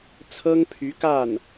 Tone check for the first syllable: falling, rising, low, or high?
high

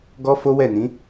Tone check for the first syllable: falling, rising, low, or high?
high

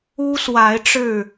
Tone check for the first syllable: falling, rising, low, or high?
high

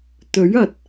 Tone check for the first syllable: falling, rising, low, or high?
rising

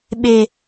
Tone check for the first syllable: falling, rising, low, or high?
low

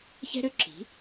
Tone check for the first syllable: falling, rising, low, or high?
high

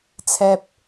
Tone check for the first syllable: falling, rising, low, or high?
low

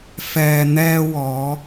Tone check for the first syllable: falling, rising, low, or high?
low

